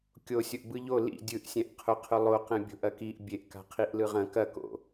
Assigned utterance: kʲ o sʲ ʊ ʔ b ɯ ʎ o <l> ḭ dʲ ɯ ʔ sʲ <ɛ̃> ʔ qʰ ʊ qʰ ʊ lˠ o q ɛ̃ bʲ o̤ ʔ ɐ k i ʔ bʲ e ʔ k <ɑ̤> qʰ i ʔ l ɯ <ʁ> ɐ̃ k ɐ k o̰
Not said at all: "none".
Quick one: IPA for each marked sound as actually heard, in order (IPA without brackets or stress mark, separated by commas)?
l, ɛ̃, a̤, ʁ